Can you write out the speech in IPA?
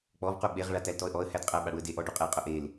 k͡p ɔ v q u ɓ e ʁ ɭ a t æ l t ɔ ə̯ ʔ ɔ ə̯ h æ d qʼ æ ɓ a ɽ u ə̯ d e ʔ ɔ ɖ u qʼ e qʼ ʊ ʔ e l

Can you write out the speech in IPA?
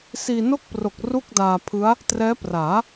s iː˧ n o˥˩ k̚ p r o˨˩ k̚ r u˥˩ k̚ d aː˧ pʰ ɯ˦˥ a̯ | t r ɛː˦˥ p r aː˩˦

